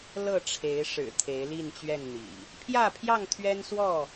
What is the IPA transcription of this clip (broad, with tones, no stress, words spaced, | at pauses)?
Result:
lɤ˥˨ʈ͡ʂʰe˨˦ɪ̯ ʂɻ̩˨˩ t̪ʰe˨˦ɪ̯li˥˨nt͡ɕɥɛ˥˨nn̪ḭ˨˩ | pʰjä˥˨pʰjɑ˥˨ŋt̪ʰɥɛ˦nswɔ˥˨